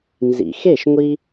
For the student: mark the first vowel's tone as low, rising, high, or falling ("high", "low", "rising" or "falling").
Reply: low